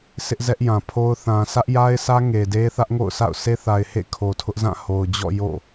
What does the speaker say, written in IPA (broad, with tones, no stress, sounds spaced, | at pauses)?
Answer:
s ɪ˦ ʔ z ɛ˦ ʔ j ã˨ pʰ o˦ ʊ̯ θ ã˨ s ä˦ ʔ j a˦ ɪ̯ s ä˦ ŋ e˨ d e˦ θ ä˦ ʔ ŋ o̰˦˨ ʊ̯ s a̰˦˨ ʊ̯ s e˦ θ a˨ ɪ̯ h ḛ˦˨ kʰ o˨ tʰ ʊ˦ ʔ z ã˦˨ h o˨ ʊ̯ d͡ʑ ɔ̰˦˨ j o̰˦˨